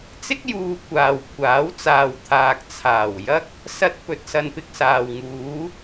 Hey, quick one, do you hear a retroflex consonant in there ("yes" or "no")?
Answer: no